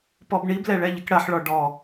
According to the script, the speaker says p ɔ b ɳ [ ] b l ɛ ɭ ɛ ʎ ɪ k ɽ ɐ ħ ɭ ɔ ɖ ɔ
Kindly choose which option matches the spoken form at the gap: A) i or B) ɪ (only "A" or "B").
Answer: A